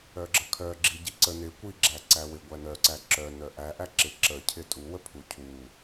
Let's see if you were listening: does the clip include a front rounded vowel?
yes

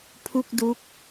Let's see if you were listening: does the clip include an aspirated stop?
yes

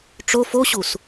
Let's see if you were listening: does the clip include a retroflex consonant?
yes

